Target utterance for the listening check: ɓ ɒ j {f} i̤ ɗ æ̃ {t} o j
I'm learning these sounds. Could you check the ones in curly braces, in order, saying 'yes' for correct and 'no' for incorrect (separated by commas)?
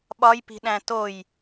no, yes